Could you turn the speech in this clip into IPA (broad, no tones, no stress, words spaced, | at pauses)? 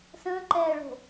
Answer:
sə̃ːǃɛːɭo̤